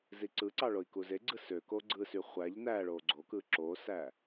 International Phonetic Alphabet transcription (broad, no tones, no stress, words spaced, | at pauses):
ziǀɯǀɑ ɭoi̯kuzeɡ͡ǀɯ sø koɡ͡ǀɯsy χʷæʎ næɭo ɡ͡ǀokɯ ǁosæ